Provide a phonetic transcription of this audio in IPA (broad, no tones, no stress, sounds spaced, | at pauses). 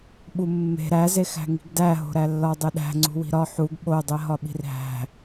ɓ u mː e̤ ɾ æ z e x æ̤ ŋ i̤ ɡ d æ ɦ o̤ ɾ æ lː ɒ dˤ e ɗ æ̤ ŋ͡ǀ ṳ w i̤ ɾ ɒ ħ u ɡ ɓ o dˤ e ɦ ɒ ɓ i̤ r ɦ æ̤